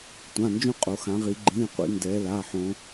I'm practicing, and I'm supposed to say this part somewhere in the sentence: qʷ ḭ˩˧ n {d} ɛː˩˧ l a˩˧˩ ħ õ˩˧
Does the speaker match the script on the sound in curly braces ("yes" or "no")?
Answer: yes